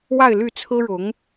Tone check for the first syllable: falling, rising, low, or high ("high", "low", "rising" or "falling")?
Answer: falling